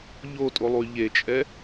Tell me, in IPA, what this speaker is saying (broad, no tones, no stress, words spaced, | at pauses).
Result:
ʎotʼolˠuy̯ ʎet͡ʃʼɛ